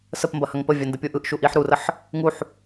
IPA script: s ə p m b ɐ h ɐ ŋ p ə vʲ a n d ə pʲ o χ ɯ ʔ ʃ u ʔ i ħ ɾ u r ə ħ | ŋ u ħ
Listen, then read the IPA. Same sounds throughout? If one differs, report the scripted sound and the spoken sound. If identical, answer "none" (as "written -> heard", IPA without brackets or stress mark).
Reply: χ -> ʔ